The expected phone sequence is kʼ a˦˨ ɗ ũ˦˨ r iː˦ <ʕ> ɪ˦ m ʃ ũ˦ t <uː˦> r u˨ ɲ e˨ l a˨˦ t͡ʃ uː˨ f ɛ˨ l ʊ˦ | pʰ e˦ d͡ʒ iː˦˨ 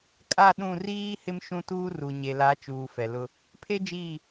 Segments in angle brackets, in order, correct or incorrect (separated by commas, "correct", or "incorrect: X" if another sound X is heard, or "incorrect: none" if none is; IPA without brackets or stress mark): incorrect: h, correct